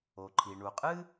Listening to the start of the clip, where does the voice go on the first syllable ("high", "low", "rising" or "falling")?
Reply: low